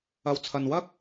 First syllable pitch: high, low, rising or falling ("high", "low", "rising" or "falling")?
low